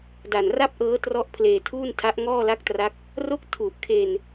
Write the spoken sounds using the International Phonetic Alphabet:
da˨˩nra˥˩p̚ʔɤː˦˥ trɔ˦˥ʔpʰleː˧tʰuː˥˩ntʰa˦˥ʔ ŋɔː˥˩la˦˥k̚tra˦˥k̚ | ro˥˩k̚ tʰu˨˩ʔkʰe˧n

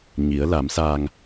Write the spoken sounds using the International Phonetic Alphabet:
ɲi˩˧ə̯la˩˧msaː˧ŋ

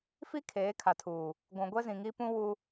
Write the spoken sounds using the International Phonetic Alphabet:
fi˦ kʰeː˨˦kʰa˨tʰuː˨ | ɡʷũ˨ ɡʷɛ˦zĩ˨ŋi˦pũ˦ wu˦

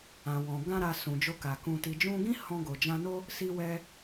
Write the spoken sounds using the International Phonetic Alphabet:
ã˨wɔ̃˨ ɡã˧ɾa˨ sũ˨d͡ʒo˧ka˨ kũ˨ti˨d͡ʒũ˧ɡĩ˦ hɔ̃˧ɡo˨d͡ʒã˧no˦ | si˧wɛ˧

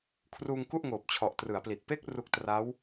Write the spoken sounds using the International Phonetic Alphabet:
kʰruː˧ŋku˥˩ʔŋoː˨˩p̚ t͡ɕʰɔ˨˩ʔtrɯ˩˦a̯pli˨˩t̚ pe˦˥k̚ ru˦˥k̚tra˦˥w

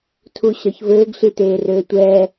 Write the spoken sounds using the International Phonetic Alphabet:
tʰuɕɒçvɘːɡ ɬiteːrøːtʷɛː

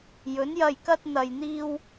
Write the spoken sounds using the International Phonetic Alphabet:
jɵ˨˥njɐ˧jkɐ˥t̚ n̪ɐ˧jn̪iː˥w

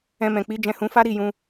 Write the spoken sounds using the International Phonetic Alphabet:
ɛ̃˧mɛ̃˨ k͡pi˨˦ d͡ʒɛ̃˧hũ˧fa˦ ɾi˦˨jũ˧

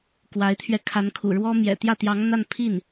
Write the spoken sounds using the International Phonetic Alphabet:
kwa˧˥ɪ̯t̪ʰɥɛ˧ kʰa˧˥nkʰṵ˨˩ɻwɔ˥ mjɛ̰˨˩ t̪jä˥˩ t̪jɑ˧˥ŋ n̪a˥˧n pʰi˥˩n

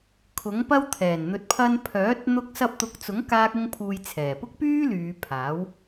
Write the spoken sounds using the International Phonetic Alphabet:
kʰʊ˨˥ŋpɐ˥wt̪ʰɛː˨˩n n̪ɵ˨t̚pʰɐ˧n pʰœː˨˥t̚ n̪ʊ˧k̚sɐ˧p̚t̪ʊ˨˥k̚t͡sʊ˨˥ŋ kaː˥k̚ʊ˥ŋpʰuː˧jt͡sʰɛː˨˩ pʊ˥k̚pyː˥ lyː˨˧pʰaː˨˥w

